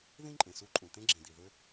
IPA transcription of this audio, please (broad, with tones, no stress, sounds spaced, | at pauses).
ð ĩ˥ ǃʼ ẽ˩ s u˥ ǃʼ ũ˩ t̪ ẽ˥ ɡ͡ǁ ĩ˩ d̪ i˩ ð ø˥